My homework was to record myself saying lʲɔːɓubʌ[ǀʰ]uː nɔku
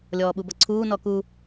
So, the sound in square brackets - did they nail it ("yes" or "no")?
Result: yes